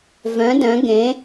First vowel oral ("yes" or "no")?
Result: no